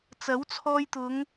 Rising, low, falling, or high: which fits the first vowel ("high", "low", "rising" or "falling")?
rising